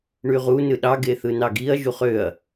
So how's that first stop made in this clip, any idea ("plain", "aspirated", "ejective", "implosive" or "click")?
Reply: implosive